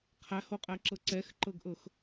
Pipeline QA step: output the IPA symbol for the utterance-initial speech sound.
qʰ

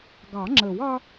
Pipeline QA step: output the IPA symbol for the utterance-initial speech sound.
ɡ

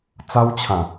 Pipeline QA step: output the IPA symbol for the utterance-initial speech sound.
t͡s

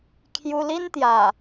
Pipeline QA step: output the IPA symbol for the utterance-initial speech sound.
kʰ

